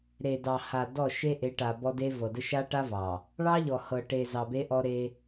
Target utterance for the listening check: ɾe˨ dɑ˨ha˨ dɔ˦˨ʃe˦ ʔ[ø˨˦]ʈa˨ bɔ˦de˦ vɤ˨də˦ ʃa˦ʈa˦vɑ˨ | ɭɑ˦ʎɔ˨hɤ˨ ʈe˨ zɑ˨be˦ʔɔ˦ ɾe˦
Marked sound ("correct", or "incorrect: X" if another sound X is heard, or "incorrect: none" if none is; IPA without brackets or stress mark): incorrect: e˨˦